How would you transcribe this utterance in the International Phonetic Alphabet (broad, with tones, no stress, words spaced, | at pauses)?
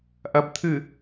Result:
ʔɐ˨bt̪ʰɨ˨